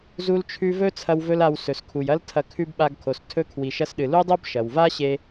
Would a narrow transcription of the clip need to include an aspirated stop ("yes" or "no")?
yes